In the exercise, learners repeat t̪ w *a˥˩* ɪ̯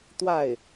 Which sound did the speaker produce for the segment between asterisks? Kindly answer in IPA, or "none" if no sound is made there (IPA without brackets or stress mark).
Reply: a˥˩